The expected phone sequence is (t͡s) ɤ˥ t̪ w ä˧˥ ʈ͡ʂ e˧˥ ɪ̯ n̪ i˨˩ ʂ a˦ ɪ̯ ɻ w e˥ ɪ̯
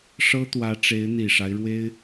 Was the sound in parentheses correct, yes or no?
no